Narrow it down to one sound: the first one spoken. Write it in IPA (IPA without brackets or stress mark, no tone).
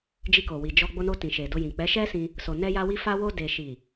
d͡ʒ